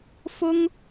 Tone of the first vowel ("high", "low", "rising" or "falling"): high